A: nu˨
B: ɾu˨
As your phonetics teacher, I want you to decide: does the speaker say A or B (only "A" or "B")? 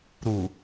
B